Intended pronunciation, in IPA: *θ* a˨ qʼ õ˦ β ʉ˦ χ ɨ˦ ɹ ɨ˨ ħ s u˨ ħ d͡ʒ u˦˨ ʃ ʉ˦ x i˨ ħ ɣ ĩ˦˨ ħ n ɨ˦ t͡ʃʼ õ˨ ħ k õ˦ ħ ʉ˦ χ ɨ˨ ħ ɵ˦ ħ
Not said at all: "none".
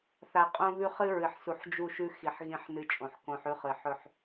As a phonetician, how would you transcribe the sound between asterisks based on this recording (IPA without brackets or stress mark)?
θ